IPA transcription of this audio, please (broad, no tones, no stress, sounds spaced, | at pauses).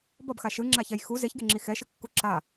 b ʌ b x a ʃ ɯ ŋ͡ǁ a ç ɛ j x u z e ç ɡ e ŋ͡ǁ i x ɛ ʃ ɯ kː u ǁ a